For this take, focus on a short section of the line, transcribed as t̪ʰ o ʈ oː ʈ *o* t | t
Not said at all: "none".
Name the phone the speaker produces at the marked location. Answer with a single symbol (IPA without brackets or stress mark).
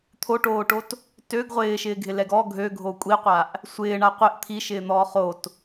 o